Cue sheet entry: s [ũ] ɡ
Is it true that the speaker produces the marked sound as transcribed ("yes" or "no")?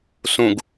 yes